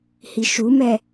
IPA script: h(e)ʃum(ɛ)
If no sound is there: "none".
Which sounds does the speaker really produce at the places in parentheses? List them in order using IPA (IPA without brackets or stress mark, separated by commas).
i, ɛ